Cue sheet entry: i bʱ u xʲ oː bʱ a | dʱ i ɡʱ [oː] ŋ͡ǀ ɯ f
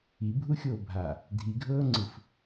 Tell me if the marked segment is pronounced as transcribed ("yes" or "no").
no